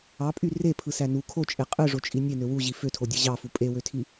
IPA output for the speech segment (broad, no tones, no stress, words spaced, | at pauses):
ɑpʼy repʰɯsæ nu kʰot͡ʃʼe qʼɯʐot͡ʃʼi nʲenø wuʑi føtʰodʲɯ ʑɑfu pʼewøtʰi